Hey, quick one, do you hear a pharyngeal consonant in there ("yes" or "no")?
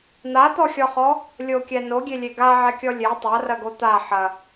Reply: yes